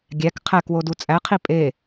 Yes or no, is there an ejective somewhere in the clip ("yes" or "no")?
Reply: yes